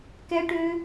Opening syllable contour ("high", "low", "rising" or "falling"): high